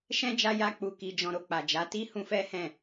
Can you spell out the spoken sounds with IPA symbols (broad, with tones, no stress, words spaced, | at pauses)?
ʃɛ̃˦d͡ʒa˧ja˧ k͡pu˨ki˨d͡ʒɔ̃˨ ɾo˨k͡pa˨ d͡ʒa˨˦ti˦ hũ˧fɛ˦ hɛ̃˦˨